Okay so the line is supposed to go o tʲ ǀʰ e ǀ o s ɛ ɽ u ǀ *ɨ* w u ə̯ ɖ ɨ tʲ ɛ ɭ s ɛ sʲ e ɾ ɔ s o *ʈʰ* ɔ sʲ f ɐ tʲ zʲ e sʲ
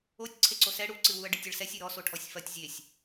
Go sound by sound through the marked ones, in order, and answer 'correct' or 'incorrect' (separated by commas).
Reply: correct, correct